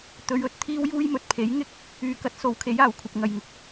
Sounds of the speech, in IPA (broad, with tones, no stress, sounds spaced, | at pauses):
t̪ ɵ˨˧ ɥ ɵ˨ t̚ t̪ʰ iː˥ w j uː˥ j m ɵ˨ t̚ pʰ e˨˥ j ŋ ɪ˥ k̚ | yː˨ k ɐ˨˥ t̚ s o˨˥ w kʰ e˨˥ j aː˨˩ w kʷʰ ɐ˨ p̚ ŋ ɐ˨ j ŋ ʊ˧ k̚